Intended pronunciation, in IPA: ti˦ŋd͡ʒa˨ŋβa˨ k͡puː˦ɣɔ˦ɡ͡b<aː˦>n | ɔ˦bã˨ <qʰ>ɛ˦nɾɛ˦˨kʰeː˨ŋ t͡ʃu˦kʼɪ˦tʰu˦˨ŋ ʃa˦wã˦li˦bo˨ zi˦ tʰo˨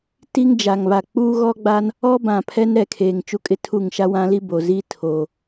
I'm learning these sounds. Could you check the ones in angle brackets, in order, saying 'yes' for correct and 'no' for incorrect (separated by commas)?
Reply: no, no